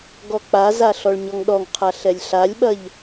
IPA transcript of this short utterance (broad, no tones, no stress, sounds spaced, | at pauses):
ɡ ɔ k͡p a z a ɬ ɔ ɭ ɲ ɔ ŋ ɗ ɔ ŋ qʰ a ɬ ɛ lʲ ɬ a lʲ ɓ ɐ ʎ